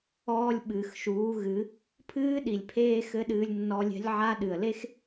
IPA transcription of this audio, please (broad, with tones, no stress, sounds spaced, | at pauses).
ɔː˧ lʲ ɓ ɨː˩ x ʃ uː˩˧ ɣ ɨ˩˧ | pʰ ɨː˧˥ ɗ i˩ lʲ pʰ eː˧ x ɘ˧˥ ɗ ɨː˧ lʲ nː ɔ˧ lʲ ɛ̤˧˥ lʲ ʕ a˧˥ ɗ ɨ˩ ə̯ l e˥ x